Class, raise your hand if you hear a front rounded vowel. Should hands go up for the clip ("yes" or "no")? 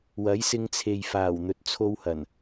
no